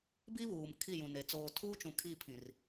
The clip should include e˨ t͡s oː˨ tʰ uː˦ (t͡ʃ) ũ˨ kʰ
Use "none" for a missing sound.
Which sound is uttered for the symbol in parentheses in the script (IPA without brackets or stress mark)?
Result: t͡ʃ